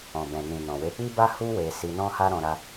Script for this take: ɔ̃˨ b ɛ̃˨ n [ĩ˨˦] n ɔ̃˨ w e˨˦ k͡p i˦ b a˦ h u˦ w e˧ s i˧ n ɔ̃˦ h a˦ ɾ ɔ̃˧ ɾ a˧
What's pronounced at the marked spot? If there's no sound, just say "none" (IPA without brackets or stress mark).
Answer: ĩ˨